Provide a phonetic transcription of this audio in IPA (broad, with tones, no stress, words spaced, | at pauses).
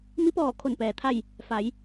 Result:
mi˧˥pɔː˧˩kʰo˧˩n pɛː˩ t̪ʰa˥˨j | fa˩˧j